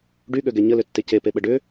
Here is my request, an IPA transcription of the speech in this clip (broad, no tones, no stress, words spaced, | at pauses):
ɖyɠøɡɛ ɲəlʏtːe cepeɓə ɖʏ